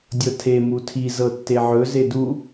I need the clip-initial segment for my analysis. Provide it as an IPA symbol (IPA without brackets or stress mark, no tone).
dʲ